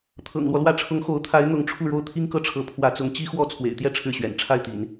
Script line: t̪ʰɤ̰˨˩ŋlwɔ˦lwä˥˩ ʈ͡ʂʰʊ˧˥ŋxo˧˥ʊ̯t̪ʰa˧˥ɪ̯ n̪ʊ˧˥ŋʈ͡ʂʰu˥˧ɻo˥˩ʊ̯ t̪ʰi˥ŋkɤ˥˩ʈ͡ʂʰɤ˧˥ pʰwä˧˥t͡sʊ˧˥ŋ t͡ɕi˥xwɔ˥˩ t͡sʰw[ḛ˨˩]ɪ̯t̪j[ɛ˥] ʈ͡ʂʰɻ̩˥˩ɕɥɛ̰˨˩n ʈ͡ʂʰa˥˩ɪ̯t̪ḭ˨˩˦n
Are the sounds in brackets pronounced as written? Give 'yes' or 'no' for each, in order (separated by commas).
yes, no